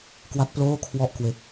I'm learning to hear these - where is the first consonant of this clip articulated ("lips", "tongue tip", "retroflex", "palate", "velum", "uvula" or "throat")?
velum